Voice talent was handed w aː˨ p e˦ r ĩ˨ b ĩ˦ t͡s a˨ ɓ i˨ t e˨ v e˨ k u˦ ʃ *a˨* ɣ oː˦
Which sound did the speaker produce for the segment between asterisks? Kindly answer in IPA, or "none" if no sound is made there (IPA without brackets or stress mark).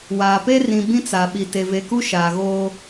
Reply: aː˨